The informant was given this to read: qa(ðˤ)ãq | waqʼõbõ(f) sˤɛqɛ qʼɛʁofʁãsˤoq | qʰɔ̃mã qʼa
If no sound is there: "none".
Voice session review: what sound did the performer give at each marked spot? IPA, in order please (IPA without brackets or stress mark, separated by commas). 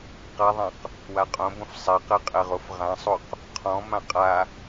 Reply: ðˤ, f